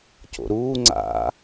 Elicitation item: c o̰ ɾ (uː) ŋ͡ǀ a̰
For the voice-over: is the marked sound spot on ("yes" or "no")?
yes